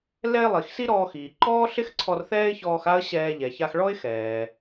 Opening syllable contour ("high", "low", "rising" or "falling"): high